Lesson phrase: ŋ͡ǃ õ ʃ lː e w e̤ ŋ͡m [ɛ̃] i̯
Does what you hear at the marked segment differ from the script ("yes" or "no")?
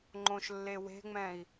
no